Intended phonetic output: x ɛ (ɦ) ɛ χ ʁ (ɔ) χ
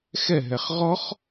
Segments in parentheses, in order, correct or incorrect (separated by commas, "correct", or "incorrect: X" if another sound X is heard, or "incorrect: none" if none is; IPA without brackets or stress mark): correct, correct